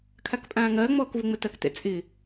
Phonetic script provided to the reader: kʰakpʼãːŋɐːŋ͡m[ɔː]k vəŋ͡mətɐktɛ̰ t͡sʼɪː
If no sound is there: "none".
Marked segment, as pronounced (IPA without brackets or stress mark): ɔː